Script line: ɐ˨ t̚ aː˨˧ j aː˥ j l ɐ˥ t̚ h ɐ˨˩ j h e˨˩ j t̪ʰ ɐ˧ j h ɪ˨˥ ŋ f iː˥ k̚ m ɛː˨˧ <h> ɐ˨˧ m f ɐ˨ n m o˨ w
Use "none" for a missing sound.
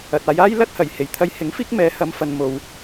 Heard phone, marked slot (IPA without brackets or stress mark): h